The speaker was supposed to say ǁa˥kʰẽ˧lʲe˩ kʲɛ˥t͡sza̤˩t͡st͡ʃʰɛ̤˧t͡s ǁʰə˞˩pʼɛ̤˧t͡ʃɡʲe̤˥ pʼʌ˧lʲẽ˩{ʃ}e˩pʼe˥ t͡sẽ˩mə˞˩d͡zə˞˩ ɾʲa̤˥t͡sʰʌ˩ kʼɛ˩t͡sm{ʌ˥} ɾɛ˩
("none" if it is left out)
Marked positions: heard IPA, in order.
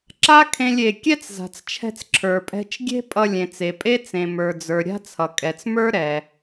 t͡s, ə˞˥

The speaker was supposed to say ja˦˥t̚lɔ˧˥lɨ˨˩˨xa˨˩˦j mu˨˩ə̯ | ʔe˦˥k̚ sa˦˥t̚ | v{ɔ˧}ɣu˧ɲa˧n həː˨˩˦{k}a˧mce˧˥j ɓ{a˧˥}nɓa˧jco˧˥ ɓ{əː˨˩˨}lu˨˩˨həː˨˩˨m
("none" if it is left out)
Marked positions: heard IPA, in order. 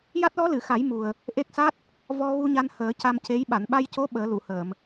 ɔ˧, c, a˨˩˨, əː˨˩˦

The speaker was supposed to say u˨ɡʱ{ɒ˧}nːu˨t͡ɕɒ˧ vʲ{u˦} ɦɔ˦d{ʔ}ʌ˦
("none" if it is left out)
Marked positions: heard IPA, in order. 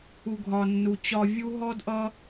ɒ˨, u˦, ʔ

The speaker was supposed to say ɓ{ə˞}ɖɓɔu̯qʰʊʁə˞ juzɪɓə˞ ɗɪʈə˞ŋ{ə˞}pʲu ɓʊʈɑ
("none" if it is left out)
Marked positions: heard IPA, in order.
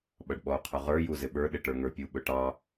ʌ, ə˞

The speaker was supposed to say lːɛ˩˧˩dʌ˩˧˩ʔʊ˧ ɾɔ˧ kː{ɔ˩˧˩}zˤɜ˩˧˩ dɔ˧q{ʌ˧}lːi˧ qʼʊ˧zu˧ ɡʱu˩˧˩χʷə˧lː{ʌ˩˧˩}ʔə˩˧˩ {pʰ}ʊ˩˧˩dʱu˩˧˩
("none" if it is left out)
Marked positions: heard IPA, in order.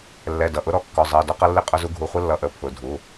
ɔ˩˧˩, ʌ˧, ʌ˩˧˩, pʰ

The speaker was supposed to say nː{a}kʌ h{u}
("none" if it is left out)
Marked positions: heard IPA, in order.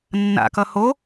a̰, o

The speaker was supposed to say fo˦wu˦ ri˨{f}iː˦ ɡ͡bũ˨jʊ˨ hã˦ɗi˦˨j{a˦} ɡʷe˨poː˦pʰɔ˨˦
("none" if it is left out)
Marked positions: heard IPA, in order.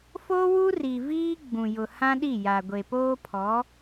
v, a˨

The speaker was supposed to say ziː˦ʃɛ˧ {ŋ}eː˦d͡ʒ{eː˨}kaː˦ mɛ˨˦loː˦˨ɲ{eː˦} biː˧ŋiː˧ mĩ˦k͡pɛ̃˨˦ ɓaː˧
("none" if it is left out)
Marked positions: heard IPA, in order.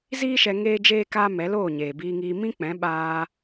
ŋ, eː˦, eː˨

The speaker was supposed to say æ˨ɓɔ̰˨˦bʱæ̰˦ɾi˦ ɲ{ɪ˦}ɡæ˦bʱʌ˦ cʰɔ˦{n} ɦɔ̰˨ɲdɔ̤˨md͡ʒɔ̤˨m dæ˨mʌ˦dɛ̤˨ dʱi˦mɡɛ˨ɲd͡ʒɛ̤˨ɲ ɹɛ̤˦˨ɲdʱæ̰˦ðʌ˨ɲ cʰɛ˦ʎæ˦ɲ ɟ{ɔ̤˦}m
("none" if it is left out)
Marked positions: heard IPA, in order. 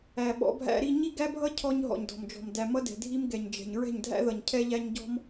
i˦, ɲ, ɔ̤˦

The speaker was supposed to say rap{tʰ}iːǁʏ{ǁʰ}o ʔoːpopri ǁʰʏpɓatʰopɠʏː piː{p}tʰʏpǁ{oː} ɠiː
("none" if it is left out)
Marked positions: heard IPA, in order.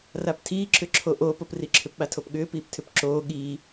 tʰ, ǁʰ, p, oː

